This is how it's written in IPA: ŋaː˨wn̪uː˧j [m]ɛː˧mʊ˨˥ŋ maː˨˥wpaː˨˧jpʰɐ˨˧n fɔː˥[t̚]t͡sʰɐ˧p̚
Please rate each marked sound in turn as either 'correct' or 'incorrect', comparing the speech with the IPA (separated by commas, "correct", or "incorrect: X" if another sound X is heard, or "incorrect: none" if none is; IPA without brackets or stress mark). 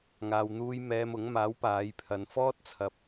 correct, correct